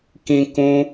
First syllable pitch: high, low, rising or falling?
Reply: high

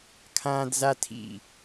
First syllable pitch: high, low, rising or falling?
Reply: high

